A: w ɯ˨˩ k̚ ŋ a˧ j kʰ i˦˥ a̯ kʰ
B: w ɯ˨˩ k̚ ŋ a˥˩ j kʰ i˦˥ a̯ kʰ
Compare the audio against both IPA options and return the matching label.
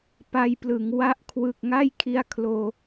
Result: B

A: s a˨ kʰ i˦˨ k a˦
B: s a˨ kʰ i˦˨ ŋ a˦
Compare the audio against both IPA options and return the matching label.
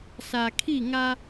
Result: B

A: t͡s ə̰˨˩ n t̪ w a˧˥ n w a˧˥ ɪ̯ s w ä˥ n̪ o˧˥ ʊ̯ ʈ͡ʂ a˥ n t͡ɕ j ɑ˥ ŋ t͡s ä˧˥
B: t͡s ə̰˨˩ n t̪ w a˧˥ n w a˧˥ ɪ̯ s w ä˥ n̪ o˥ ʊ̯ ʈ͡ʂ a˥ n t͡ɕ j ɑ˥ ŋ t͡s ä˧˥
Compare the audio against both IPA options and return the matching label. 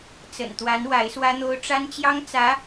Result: B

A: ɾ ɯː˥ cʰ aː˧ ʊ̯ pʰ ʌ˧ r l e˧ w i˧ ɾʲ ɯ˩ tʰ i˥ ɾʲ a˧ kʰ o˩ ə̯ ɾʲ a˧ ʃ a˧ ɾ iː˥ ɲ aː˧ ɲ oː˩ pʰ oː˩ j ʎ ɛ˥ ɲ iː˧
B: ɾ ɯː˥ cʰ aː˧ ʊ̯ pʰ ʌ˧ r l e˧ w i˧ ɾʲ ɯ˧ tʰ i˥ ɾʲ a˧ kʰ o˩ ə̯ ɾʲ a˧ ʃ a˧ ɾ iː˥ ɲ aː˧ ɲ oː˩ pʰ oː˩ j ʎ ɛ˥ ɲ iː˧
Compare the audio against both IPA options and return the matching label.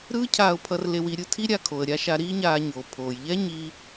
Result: B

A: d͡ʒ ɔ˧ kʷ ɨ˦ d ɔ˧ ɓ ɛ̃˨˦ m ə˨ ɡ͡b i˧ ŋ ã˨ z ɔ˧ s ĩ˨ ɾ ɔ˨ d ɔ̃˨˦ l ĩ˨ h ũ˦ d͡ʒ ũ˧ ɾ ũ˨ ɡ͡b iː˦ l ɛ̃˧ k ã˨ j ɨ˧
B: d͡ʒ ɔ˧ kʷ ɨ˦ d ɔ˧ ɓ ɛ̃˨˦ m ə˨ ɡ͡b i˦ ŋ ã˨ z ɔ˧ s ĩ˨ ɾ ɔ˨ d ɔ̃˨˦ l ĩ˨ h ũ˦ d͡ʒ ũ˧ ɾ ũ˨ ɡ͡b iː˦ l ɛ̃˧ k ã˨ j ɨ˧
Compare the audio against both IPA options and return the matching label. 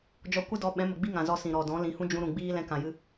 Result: B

